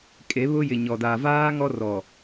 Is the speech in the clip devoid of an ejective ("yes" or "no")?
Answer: no